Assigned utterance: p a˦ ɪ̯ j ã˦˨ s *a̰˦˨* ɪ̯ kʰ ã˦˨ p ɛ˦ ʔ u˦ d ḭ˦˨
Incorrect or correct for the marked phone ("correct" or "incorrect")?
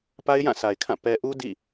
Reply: incorrect